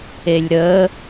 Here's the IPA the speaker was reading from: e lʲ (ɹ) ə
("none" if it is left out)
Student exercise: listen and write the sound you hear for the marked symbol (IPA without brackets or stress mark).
ɾ